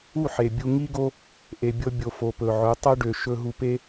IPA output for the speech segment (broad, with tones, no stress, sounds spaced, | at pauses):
u˦˨ ħ e˨ bʲ u˧ ŋ i˦ ɡ o˦ | ʔ e˨ bʲ ɤ˧ bʲ o˨ f o˨ p ɵ˨ ʕ ɵ˨˦ tˤ ɤ˦ ɖ ø˨ ʃ ɵ˧ ɦ u˧ p e˦